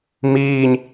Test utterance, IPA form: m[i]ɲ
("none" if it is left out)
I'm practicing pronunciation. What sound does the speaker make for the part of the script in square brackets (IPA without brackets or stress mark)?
iː